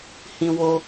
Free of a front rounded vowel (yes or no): yes